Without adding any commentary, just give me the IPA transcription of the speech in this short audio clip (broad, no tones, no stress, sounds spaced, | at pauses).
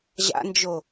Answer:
ʑ a̰ n d͡ʒ o